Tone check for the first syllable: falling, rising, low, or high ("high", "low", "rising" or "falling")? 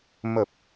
low